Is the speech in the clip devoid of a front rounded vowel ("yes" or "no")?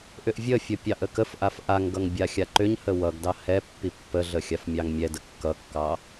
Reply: no